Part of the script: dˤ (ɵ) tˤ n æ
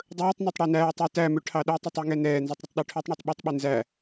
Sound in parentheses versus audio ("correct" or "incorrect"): incorrect